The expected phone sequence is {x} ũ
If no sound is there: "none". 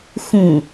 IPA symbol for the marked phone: x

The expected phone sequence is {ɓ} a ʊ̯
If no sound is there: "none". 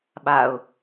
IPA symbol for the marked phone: ɓ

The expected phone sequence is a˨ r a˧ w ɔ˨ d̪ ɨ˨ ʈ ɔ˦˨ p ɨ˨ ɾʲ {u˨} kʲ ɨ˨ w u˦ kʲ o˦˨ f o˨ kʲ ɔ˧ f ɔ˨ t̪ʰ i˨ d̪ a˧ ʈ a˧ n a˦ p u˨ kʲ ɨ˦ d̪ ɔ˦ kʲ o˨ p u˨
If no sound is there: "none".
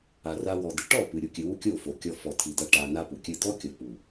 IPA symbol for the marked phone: u˨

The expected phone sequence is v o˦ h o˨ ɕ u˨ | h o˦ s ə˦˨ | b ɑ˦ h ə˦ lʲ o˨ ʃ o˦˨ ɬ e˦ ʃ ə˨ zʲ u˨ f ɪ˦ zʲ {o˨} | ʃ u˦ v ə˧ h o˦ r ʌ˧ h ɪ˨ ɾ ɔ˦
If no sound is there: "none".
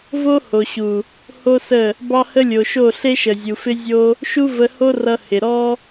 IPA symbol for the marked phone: o˦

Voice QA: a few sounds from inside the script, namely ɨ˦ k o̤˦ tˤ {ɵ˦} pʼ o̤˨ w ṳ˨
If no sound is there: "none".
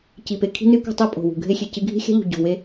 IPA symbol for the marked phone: o˦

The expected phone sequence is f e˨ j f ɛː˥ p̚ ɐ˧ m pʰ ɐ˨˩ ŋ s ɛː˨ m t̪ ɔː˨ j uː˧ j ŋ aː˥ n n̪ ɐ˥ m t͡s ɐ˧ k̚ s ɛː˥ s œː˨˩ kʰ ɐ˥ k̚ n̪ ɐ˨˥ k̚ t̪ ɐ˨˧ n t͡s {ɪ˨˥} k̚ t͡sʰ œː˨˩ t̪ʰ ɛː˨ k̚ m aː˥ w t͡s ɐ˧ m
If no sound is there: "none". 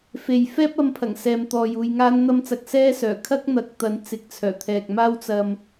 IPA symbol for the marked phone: ɪ˨˥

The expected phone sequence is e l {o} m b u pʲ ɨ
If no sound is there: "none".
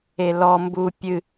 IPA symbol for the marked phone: ɔ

